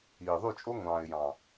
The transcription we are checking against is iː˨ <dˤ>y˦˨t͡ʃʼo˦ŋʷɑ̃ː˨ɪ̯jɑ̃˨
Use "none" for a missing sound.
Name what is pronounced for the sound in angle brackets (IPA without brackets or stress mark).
ðˤ